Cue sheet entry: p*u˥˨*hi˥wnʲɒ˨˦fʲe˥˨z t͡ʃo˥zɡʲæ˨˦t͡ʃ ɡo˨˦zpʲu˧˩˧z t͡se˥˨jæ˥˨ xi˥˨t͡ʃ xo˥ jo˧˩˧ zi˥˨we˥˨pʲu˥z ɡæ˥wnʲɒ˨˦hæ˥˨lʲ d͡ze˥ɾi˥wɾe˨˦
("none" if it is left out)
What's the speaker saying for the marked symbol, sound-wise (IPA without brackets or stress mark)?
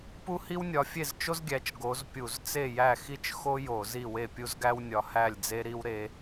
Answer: u˥